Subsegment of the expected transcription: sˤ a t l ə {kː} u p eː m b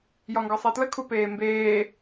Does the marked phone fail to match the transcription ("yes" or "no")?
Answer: yes